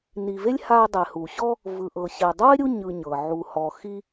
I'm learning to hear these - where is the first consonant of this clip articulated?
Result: tongue tip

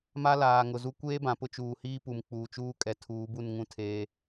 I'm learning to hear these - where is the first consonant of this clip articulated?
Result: lips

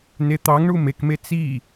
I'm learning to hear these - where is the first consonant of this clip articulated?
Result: tongue tip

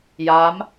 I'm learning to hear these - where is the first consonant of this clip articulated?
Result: palate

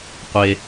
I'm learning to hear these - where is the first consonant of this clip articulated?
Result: uvula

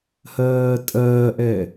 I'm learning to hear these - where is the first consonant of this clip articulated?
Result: throat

